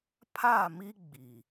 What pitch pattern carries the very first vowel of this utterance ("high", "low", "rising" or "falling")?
falling